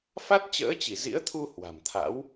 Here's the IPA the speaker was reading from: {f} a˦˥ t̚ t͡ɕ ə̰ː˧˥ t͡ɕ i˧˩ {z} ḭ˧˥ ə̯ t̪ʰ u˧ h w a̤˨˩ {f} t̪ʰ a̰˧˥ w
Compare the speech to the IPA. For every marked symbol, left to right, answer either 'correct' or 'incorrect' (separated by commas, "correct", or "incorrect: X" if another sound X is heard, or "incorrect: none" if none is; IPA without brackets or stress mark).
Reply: correct, correct, incorrect: m